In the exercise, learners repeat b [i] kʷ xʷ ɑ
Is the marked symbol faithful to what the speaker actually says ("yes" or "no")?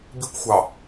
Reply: yes